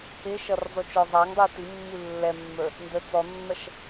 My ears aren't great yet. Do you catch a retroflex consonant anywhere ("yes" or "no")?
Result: no